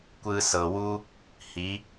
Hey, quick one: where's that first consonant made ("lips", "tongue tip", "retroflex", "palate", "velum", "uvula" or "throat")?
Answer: velum